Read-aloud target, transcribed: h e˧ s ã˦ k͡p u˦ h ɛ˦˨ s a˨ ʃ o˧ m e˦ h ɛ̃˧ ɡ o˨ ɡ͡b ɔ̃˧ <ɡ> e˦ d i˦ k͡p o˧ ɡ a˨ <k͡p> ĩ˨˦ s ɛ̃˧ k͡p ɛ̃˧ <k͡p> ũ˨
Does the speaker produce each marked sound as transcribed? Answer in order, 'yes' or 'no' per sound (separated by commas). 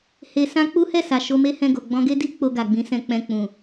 yes, no, yes